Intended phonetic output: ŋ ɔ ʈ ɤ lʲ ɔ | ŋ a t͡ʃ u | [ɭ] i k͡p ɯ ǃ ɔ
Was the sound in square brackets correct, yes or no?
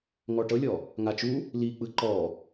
no